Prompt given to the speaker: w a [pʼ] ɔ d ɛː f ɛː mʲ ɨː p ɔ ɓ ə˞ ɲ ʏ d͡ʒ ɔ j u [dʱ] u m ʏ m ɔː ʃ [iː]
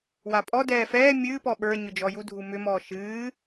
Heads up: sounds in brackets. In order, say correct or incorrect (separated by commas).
correct, correct, incorrect